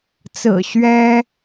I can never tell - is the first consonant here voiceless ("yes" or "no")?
yes